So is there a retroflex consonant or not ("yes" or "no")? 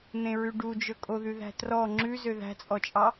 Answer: yes